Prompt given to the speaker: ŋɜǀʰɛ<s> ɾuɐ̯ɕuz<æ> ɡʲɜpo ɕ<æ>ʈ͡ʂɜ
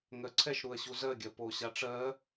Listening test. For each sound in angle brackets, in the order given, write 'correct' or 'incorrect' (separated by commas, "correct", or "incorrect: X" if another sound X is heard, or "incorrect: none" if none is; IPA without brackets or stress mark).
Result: incorrect: ʃ, incorrect: ɜ, incorrect: a